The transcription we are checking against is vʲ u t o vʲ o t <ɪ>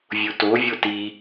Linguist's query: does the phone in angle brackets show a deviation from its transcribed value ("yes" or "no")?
yes